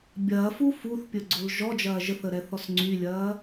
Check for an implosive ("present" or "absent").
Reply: absent